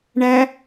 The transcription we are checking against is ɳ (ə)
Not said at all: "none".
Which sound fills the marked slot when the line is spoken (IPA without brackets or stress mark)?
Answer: æ